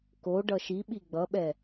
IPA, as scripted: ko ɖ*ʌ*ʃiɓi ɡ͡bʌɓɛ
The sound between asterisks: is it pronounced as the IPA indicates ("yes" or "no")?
yes